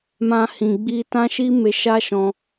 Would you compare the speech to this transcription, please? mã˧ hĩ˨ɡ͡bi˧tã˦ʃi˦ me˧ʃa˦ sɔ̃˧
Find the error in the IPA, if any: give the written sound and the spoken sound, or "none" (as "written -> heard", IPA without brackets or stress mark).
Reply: s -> ʃ